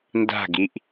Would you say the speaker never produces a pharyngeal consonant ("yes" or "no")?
yes